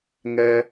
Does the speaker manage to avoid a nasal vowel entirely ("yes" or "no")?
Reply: yes